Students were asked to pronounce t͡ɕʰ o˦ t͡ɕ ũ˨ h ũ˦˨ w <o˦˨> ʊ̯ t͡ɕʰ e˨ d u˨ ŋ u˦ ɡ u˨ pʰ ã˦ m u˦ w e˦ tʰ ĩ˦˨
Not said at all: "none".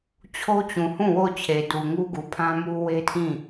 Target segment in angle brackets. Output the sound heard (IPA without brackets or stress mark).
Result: o˦˨